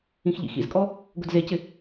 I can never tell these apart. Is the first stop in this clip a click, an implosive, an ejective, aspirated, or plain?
ejective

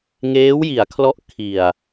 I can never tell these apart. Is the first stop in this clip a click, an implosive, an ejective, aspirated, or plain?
aspirated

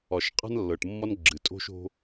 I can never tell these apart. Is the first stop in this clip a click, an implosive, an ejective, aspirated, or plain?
ejective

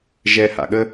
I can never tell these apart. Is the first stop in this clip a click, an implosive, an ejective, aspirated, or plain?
implosive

